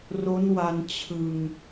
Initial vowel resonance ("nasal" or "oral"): oral